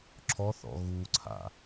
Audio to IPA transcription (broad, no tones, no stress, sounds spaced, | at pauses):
ǁʰ ɔ θ ɔ̰ ɣ u ǀʰ a̰